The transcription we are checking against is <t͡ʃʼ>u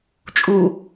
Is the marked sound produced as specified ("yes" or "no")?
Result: yes